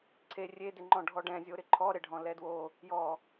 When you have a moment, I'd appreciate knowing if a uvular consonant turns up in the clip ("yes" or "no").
no